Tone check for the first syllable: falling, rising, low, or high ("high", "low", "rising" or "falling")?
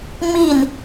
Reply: falling